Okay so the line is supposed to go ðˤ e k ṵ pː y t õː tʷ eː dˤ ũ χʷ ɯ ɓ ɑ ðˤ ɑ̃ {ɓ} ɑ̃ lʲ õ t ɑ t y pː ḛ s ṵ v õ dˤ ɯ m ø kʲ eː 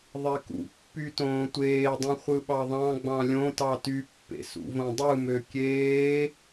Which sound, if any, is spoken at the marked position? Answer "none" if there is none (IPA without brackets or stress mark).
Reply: ɡ͡b